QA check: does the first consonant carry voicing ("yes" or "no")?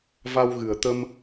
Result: yes